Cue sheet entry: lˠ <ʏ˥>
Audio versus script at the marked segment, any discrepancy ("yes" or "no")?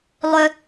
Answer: no